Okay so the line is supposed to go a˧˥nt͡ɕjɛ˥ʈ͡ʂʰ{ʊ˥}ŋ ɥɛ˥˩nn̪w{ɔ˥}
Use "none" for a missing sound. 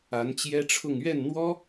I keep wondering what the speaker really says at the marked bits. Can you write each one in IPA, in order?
ʊ˥˧, ɔ˥

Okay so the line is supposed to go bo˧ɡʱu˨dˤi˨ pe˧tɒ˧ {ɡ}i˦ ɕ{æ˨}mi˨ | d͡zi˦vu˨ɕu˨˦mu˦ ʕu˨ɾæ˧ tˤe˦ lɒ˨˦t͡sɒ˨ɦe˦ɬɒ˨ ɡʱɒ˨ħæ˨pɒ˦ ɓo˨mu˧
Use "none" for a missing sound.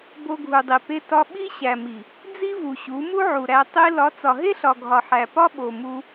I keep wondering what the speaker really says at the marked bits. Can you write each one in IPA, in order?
ɓ, æ˨

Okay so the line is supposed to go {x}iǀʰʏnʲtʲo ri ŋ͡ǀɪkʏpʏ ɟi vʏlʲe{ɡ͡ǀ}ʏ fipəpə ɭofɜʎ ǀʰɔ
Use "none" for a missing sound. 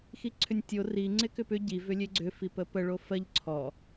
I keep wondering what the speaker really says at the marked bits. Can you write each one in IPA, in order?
x, ɡ͡ǀ

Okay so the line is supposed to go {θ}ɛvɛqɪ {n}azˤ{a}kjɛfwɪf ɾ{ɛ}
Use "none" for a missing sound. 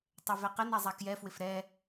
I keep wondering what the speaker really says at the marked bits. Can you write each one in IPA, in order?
tˤ, n, a, ɛ

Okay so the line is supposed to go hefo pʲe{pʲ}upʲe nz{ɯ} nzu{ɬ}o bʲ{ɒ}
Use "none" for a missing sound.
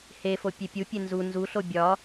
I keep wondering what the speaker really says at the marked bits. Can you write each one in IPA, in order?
pʲ, u, ɬ, ɒ

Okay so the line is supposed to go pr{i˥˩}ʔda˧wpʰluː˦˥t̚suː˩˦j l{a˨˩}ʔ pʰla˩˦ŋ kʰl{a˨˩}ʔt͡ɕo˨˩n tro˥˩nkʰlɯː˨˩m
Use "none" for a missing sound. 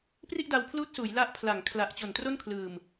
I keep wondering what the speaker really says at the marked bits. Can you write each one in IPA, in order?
i˥˩, a˦˥, a˨˩

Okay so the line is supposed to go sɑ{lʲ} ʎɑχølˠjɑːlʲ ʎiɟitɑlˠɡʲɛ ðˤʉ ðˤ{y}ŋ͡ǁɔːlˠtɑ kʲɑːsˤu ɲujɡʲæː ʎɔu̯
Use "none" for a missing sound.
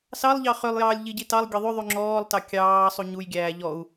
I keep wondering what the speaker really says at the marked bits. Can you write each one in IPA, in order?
lˠ, y

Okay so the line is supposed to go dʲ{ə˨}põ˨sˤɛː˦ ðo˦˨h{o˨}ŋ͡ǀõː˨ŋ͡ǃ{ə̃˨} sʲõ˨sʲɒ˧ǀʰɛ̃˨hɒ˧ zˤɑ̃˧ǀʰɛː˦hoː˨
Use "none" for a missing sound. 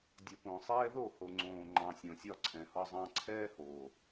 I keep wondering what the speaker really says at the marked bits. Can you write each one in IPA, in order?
ə˨, o˨, ɑ̃˨

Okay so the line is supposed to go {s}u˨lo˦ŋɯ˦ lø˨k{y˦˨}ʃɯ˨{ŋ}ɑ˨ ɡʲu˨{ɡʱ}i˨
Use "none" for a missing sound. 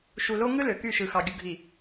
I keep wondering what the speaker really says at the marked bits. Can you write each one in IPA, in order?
ʃ, y˦˨, x, ɡʱ

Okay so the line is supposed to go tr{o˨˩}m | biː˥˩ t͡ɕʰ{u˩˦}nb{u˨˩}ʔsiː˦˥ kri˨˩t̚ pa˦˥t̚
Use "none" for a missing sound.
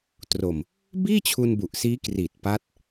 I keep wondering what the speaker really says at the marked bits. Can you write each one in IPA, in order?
o˨˩, u˧, u˨˩

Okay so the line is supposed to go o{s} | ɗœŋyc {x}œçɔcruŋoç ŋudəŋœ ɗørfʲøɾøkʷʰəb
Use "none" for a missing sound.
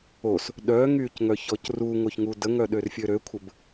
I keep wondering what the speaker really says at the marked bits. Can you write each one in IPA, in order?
s, ŋ

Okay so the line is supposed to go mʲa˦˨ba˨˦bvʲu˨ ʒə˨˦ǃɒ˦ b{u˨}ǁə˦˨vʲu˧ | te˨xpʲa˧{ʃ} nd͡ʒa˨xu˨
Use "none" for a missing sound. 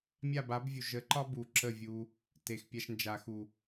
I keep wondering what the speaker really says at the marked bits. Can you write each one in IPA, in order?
u˨, ʃ

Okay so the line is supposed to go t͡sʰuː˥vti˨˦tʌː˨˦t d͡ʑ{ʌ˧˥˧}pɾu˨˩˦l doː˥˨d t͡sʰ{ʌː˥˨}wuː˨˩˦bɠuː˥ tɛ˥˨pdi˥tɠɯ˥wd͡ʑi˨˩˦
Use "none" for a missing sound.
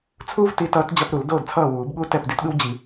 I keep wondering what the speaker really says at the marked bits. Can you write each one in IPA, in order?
ʌ˧˥˧, ʌː˥˨

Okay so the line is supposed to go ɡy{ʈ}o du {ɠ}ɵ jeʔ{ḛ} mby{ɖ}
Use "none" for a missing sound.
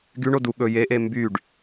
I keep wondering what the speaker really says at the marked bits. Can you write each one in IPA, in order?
ɳ, ɠ, e, ɖ

